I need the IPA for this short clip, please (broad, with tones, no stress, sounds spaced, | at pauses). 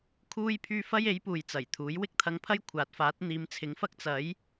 kʰ uː˥ j pʰ yː˥ f ɐ˥ j e˨˥ j p uː˨ j t͡s ɐ˨˩ j t̪ʰ uː˨˥ j w ɪ˥ k̚ t̪ʰ ɐ˧ ŋ pʰ ɐ˥ j kʷʰ aː˨˥ t̚ f aː˨˥ t̚ n̪ iː˨˧ m t͡sʰ ɪ˨˥ ŋ f ɐ˥ k̚ t͡s ɐ˨˥ j